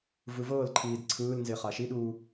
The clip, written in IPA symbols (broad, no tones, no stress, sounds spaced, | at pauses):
v ɯ v ɤː l ǃʰ iː d ǀʰ ɯː l n z e χ a ʃ i ɗ uː